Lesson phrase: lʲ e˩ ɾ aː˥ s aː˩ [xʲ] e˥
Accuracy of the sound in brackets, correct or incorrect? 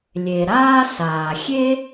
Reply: correct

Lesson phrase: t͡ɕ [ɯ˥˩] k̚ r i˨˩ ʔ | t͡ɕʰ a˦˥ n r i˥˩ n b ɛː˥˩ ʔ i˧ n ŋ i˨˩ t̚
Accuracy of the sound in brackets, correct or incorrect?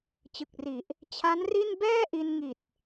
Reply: incorrect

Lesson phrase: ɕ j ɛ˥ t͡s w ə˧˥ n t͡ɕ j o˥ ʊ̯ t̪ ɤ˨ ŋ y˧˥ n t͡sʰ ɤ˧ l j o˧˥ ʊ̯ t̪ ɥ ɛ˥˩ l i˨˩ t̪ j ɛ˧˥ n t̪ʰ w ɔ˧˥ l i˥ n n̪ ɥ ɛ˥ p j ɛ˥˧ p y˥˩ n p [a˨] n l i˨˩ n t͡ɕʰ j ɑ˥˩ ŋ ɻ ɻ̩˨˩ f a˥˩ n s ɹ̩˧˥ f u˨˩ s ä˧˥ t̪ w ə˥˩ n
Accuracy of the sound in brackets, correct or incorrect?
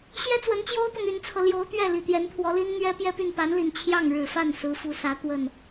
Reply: incorrect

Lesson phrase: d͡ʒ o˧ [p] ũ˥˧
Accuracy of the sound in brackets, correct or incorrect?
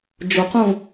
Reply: incorrect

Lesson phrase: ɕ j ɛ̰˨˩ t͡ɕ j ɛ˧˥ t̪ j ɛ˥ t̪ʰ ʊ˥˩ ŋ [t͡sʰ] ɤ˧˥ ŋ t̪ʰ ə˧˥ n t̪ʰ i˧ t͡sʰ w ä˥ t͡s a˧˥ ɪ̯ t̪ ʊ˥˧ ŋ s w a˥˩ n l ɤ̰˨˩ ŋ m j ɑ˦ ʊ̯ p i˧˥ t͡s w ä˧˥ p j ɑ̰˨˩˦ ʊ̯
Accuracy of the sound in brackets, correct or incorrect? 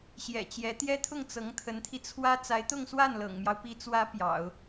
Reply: incorrect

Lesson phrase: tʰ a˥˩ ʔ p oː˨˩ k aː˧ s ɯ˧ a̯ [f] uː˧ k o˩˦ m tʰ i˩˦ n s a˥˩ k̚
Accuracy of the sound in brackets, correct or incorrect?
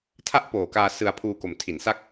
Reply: incorrect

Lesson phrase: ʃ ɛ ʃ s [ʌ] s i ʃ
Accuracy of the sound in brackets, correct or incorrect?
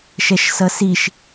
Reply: correct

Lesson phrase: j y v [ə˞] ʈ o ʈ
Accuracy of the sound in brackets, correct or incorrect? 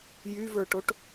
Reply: correct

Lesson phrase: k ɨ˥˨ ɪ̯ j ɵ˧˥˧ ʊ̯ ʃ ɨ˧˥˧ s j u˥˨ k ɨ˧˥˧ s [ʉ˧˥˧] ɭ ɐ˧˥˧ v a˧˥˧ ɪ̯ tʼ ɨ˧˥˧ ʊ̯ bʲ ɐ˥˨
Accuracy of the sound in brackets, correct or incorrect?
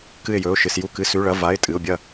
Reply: correct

